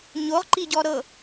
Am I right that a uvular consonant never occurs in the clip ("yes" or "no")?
no